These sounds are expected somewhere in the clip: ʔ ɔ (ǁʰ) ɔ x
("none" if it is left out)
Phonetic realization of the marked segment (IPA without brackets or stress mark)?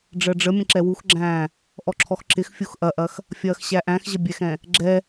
ǁʰ